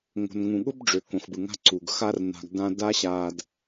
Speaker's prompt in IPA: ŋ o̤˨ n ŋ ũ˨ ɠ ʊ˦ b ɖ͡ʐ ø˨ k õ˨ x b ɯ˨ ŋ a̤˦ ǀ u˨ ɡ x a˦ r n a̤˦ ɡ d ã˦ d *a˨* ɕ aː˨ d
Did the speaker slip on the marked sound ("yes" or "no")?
yes